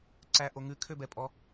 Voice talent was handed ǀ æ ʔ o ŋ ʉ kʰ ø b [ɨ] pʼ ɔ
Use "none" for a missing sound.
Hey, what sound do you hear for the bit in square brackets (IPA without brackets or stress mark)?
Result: ɛ